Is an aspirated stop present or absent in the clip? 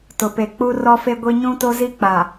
absent